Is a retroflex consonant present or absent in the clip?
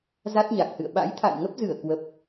absent